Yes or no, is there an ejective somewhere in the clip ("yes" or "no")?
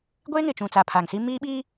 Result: no